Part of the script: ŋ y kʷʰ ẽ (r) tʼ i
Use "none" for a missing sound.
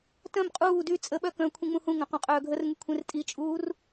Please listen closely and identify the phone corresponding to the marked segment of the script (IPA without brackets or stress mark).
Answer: r